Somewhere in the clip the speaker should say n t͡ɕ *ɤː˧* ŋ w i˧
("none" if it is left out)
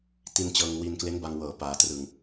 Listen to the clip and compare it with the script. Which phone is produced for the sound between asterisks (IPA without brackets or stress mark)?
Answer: ɤː˧